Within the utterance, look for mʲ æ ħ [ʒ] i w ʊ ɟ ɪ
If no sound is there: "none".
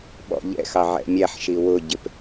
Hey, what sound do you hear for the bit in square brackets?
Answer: ʃ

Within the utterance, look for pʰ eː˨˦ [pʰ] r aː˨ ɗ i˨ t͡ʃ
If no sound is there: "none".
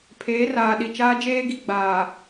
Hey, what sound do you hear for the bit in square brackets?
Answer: none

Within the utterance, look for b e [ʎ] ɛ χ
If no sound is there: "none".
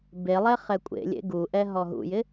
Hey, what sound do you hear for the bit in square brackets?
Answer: lˠ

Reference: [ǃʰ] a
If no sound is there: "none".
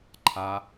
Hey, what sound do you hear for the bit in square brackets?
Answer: ǃʰ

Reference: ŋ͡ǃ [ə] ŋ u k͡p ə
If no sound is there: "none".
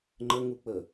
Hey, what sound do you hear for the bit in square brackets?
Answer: ə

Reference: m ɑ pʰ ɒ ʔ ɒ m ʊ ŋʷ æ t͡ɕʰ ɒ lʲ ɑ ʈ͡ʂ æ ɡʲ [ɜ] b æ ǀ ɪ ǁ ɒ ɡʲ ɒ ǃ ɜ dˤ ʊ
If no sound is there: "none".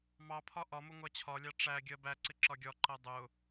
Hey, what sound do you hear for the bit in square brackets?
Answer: ɜ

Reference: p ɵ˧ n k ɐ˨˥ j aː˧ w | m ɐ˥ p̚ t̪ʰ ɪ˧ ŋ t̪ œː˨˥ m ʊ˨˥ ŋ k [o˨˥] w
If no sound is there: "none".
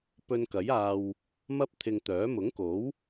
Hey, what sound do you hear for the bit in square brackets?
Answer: o˨˥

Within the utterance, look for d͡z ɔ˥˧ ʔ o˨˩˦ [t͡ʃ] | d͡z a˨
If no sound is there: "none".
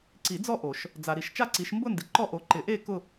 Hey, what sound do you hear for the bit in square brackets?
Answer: ʃ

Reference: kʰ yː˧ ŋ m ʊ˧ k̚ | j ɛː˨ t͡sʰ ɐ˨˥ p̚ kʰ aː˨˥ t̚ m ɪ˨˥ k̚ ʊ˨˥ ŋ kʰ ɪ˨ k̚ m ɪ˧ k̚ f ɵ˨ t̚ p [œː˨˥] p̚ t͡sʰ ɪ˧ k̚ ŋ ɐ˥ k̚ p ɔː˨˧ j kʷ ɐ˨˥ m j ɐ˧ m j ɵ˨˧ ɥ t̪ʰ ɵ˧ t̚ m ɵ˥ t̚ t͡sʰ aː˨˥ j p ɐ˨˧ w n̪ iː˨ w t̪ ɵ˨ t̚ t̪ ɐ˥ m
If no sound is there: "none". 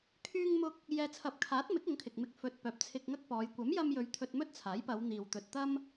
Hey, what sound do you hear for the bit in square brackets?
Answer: œː˨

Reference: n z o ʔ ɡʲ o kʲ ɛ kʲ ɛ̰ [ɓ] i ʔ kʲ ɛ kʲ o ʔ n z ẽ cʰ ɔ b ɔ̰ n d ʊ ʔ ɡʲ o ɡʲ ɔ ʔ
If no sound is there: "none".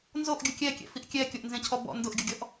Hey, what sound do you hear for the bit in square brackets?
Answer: f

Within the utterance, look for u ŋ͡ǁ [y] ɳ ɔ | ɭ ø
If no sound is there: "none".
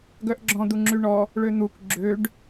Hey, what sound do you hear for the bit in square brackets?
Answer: y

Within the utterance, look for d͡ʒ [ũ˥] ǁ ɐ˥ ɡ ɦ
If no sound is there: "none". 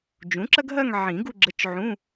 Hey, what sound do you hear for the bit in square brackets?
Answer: ũ˩˥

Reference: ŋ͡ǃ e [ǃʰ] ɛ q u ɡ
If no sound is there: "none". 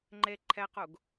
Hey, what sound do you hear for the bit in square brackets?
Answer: ǃʰ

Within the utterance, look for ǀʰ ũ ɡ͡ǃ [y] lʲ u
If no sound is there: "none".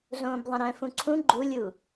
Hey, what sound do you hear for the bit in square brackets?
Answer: u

